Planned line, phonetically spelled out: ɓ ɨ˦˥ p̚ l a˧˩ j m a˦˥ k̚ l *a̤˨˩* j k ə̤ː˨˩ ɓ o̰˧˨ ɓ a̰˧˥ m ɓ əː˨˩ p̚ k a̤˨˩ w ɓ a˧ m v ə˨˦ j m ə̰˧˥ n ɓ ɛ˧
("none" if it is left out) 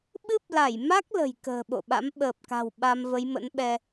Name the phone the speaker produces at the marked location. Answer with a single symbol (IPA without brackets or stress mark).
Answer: ə̤˨˩